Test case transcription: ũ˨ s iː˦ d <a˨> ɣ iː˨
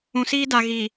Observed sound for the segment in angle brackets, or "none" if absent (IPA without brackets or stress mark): a˨